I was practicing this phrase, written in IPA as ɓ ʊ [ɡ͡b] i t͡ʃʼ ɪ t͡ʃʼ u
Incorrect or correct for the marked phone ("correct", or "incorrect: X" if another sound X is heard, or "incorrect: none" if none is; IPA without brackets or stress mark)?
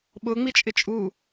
incorrect: ŋ͡m